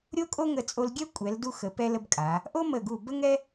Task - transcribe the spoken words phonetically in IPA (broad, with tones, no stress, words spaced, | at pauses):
ɾʲo˥kʼo˥ŋə˧˩ t͡sʼo˧lɡʲɛ˥ kʷʼɛ˩˧l du˧xə˩˧pɛ˧lə˧b kʼa˩˧ | ʔo˥ mə˧˩ɡu˧˩ bə˥ŋɛ˥